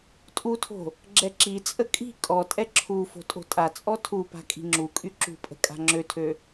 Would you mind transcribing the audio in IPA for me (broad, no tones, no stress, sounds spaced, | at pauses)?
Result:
tʼ u tʰ o̤ | ɡ͡ǁ ɛ ǁ i t͡sʼ ə kʼ i̤ kʼ ɔ tʼ ɛ ǁʰ u f o̤ tʼ o̤ tʼ a t͡sʼ ɔ tʰ u p a̤ kʼ i̤ ŋ͡ǁ u kʼ y ǁ ṳ pʼ ə̤ kʼ a̤ ŋ͡ǁ ø tʰ ø